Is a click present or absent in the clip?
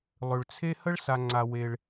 present